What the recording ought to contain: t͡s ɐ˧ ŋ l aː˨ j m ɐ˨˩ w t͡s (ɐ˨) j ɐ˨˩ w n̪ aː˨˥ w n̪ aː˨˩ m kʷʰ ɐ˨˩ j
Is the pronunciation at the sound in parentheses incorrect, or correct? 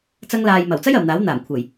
incorrect